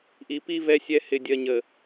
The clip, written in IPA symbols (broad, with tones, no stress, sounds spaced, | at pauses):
ʔ i˨ p i˦ v ɛ˦ sʲ ɛ˦ h ɪ˨ dʲ ɜ˨ ɲ ə˨